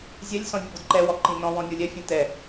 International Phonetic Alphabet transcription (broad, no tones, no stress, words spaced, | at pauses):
zʲɛlʲ sɔ̃vʲʊbʊdǃɛ wɔǃĩnɔ̃ wɔ̃nʲolʲɛ fʲɛ̃tɛ